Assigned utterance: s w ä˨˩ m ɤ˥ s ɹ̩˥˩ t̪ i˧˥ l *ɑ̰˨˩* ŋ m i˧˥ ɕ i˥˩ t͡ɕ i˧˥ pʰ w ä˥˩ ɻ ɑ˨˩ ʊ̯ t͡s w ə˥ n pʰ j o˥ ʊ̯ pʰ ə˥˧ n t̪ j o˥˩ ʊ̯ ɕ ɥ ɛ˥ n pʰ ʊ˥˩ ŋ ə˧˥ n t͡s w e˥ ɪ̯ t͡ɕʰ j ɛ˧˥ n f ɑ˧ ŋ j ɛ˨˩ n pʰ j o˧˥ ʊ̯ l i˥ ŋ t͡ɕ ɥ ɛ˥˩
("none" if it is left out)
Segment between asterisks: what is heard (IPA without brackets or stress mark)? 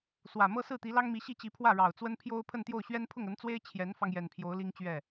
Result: ɑ˥